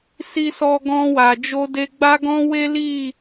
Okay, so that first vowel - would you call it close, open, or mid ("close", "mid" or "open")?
close